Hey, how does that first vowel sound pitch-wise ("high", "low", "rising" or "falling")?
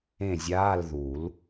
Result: falling